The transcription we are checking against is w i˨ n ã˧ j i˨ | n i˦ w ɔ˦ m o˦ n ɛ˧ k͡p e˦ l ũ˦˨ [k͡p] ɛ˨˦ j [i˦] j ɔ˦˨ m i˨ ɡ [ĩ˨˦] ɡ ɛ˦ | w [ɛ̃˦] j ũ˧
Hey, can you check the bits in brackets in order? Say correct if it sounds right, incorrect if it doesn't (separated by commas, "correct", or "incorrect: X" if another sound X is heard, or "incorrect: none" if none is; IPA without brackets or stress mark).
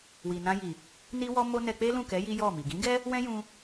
incorrect: k, correct, correct, correct